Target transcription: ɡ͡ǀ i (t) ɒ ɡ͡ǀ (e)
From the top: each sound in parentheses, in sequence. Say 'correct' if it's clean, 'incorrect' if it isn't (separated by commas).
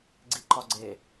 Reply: incorrect, correct